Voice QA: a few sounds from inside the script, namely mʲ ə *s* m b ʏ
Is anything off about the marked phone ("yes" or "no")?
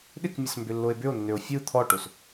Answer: no